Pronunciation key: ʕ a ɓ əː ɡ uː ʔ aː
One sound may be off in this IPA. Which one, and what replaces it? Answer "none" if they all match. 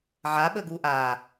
none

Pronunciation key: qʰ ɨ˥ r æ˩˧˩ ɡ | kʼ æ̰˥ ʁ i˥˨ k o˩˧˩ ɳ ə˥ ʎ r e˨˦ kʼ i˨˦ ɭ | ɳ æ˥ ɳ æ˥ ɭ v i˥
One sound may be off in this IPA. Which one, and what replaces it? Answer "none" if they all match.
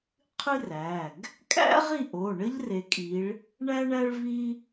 k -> ʔ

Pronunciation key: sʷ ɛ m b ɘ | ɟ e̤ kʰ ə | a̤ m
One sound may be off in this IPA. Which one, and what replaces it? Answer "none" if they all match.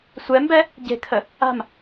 ɘ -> ɛ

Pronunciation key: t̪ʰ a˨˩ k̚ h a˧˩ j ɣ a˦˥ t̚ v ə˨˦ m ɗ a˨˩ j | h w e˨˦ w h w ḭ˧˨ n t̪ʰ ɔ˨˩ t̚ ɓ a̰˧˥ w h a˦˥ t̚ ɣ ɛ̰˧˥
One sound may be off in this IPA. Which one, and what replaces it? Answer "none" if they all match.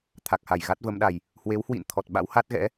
none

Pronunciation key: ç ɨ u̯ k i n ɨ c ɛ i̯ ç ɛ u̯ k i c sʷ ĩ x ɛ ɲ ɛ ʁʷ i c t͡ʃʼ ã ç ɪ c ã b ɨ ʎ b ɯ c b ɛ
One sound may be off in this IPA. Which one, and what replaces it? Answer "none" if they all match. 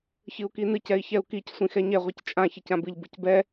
none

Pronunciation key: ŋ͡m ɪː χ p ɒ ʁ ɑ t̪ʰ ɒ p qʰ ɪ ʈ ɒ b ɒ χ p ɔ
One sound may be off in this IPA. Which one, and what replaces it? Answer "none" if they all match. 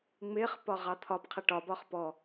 none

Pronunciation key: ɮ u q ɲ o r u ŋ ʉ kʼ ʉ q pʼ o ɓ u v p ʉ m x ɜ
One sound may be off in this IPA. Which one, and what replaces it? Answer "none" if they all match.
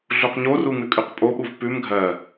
x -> ɡʱ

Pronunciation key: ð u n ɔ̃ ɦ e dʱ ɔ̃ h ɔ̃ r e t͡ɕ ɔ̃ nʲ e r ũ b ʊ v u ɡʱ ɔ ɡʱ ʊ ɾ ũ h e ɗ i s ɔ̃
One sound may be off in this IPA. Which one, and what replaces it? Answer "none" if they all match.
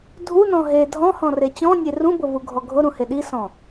ð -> dʱ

